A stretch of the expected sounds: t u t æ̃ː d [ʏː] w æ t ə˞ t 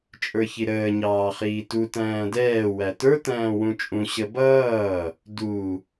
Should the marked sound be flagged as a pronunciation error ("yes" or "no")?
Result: yes